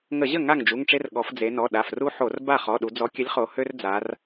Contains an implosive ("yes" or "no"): yes